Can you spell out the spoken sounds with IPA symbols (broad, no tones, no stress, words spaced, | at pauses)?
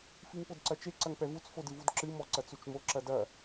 fiŋpodǀɐt͡ʃe ǀɐŋpɛvut͡s fodɨvudǁɨ mɔǀɐt͡sut͡ʃmo ǁɐdɐ